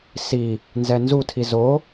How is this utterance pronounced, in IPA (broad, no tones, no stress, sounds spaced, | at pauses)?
s i | n z ɛ n z u tʰ i z o